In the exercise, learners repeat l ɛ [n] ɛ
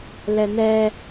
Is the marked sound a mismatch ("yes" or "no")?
no